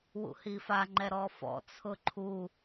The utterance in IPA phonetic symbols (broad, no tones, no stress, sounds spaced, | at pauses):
w ṵ h i f a ŋ͡ǃ ɛ ɾ ɔ f ɔ̰ t͡sʰ ʊ ǃʰ u